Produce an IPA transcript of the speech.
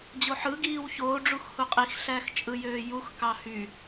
d͡ʑ o ħ ɯ ɡ iː w ç oː ɖ͡ʐ u x h u qʼ i x ɬ æ x t͡ʃʼ ɯ j øː j u x k ɑ h y

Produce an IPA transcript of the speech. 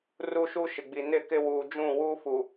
r u˦ ʃ u˦ ʃ ɪ˨ ɡ͡b i˨ n ɪ˦˨ k ɪ˦ w uː˨ d͡ʒ ũ˦˨ w u˦ f u˨

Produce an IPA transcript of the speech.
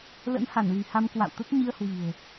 l ə̰˧˥ n h a˧˩ n l i̤˨˩ h a˧ m k w a̰˧˨ w t̪ ə˦˥ t̚ ɲ i˧ ə̯ h w i̤˨˩ ə̯

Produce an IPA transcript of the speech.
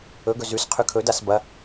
ɵ ɡ ɵ z ʉ s qʰ ʉ kʰ ɵ d a s b ɐ

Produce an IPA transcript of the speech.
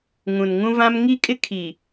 ŋ ũ˨ n ŋ ũ˦ v ã˦ m ŋ i˦ kʼ ɪ˦ kʰ i˨

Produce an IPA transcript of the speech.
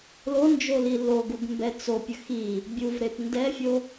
l o n d͡ʒ o l i l o ɡ u ɡ m b ɛ t͡s o pʲ ə x i | bʲ u v ɾ e p n d ɛ fʲ o

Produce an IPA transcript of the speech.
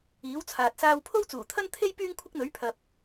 iː˨˥ w t͡sʰ aː˨ t̚ s aː˧ w pʰ o˥ w t͡s uː˨˩ t̪ʰ ɐ˥ n t̪ʰ e˥ j p yː˥ ŋ kʷʰ ɪ˥ k̚ n̪ ɵ˨˥ ɥ pʰ ɐ˨ p̚

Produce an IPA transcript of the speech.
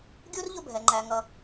ɡʲ u˥ r ʎ ʊ˥˨ bʱ ɛ˨ ŋ͡ǃ æ˨ ŋ ʌ˨

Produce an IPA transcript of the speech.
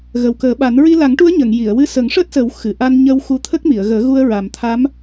ɣ ə˨˩ w k əː˨˩˦ ɓ a˨˩˦ n ɹ i˧ l a˨˩˦ ŋ ʈ u˧˥ ə̯ ɲ ə˨˩˨ ŋ j i˨˩˨ ə̯ w ɨ˧ s ə˨˩˦ ŋ ʂ əː˦˥ t̚ s ə˨˩˦ w x ɨ˨˩˨ ʔ a˧ n ɲ ə˧ w x u˧ t̪ʰ ə˦˥ k̚ m i˨˩˨ ə̯ ɣ əː˨˩˦ ɣ u˧ ə̯ ɹ a˨˩ m t̪ʰ a˧˥ m

